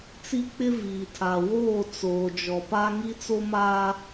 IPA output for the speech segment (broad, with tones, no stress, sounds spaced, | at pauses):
t͡s i˦ k͡p ɪ˦ v iː˨ tʰ a˨ w oː˦˨ t͡s oː˨ d͡ʒ ɔ˨ p a˦ ŋ i˦ t͡s o˦ m aː˦